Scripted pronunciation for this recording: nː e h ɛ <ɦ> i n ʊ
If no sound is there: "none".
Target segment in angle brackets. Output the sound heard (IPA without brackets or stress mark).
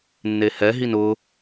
ɦ